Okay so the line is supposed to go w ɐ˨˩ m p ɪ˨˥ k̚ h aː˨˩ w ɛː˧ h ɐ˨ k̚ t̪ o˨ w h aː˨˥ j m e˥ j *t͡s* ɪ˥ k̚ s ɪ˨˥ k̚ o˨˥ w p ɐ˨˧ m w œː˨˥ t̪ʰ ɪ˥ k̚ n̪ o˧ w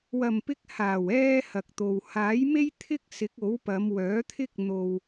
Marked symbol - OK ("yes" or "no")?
no